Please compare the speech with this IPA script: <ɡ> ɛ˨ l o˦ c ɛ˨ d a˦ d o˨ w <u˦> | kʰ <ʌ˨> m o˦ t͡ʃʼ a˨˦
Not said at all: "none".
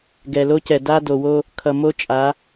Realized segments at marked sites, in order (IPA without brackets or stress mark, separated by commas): ɡ, o˦, ʌ˨